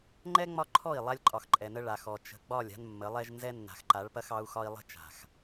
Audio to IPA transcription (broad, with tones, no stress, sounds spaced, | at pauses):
ŋ͡ǃ ɛ˦ ŋ͡m ɒ˦ ǃʰ ɔ˦˨ i̯ lˠ a˦ lʲ ǃʼ ɒ˨ x ǃʼ ɛ˨ n ə˦ ɭ a˨ x ɔ˨ t͡ʃ ə̤˨ ɡ͡b ɒ˦˨ lʲ a̤˦ n mː ə˨˦ lˠ ɛ˦ ʒ n z ɛ˦ nː a̤˨ x ǃ a˨˦ ɭ p ɐ˦ x ɑ˦ u̯ x ɒ˦ i̯ lˠ ə̤˦ t͡ʃ a̤˨ x